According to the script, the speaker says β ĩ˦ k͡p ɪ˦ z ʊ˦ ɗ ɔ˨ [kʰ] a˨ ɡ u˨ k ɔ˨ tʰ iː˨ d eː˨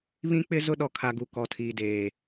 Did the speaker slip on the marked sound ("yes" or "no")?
no